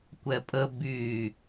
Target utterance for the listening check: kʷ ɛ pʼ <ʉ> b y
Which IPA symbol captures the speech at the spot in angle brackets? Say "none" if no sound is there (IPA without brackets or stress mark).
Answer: ə